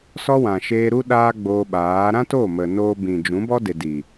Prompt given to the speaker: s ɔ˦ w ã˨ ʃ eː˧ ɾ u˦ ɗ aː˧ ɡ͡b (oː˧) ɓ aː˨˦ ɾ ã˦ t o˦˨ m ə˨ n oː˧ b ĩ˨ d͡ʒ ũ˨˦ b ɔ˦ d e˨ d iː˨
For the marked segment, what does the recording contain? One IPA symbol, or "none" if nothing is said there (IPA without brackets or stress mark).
oː˧